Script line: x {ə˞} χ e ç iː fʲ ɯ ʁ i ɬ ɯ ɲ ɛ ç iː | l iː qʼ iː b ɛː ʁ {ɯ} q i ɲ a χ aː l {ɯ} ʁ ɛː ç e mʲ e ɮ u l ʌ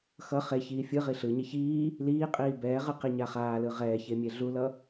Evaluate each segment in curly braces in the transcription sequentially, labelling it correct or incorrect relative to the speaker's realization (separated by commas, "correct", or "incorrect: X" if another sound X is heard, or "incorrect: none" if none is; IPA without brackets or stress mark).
incorrect: ʌ, correct, correct